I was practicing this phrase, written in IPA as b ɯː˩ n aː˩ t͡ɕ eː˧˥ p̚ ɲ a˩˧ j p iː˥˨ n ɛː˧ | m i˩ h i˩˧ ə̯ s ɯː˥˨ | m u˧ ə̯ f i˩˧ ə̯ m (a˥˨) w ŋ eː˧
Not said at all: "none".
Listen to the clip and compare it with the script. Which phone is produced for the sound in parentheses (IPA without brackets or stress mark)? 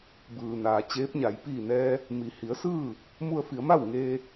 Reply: a˥˨